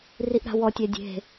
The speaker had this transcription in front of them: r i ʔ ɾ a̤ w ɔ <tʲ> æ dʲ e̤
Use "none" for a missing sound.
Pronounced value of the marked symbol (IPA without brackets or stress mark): tʲ